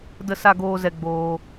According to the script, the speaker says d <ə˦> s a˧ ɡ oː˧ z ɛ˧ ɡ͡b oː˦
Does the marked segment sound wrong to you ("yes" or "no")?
yes